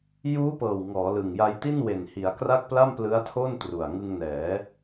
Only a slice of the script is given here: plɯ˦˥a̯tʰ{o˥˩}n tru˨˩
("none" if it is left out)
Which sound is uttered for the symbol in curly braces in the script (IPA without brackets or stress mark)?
o˥˩